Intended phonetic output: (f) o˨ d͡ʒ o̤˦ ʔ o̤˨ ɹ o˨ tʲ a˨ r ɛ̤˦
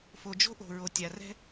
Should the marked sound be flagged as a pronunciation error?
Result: no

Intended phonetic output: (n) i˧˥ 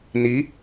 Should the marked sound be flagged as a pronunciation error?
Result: no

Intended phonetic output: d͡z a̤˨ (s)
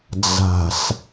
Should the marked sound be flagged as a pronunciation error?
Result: no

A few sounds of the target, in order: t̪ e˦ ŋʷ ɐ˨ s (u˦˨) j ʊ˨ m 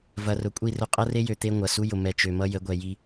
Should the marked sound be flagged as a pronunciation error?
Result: yes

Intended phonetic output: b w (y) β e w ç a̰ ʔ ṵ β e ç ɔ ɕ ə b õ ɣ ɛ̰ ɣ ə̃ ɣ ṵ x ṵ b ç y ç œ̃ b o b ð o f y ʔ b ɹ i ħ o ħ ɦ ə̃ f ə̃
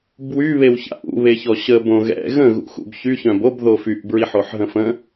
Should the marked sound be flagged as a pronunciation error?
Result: no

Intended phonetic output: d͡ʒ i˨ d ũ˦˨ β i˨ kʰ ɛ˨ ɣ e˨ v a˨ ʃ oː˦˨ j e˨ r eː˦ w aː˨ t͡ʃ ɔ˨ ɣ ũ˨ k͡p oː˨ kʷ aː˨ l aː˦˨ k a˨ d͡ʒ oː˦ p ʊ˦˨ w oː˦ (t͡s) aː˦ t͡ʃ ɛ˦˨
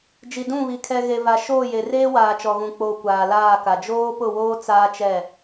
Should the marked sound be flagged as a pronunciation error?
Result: no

